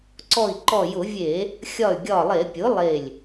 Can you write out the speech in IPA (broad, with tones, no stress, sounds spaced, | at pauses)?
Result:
ǀ ɔ˧˩ i̯ ǃ ɔ˧˩ j ʊ˧˩˧ vʲ e˧˩˧ | xʲ ɒ˧˩ y̯ ɡʲ ɒ˧˩ lˠ e˧˩˧ pʲ ʊ˩˥ lˠ e˧˩ lʲ